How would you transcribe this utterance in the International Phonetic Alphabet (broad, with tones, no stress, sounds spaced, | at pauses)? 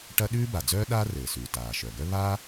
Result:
ʈ ɐ˥ ɗ ʉː˥ b a˩ d͡z œː˥ ɗ aː˥ r ɘː˩ s ʉː˩ t aː˩ ʃ œ˩ ɡ œ˥ β aː˥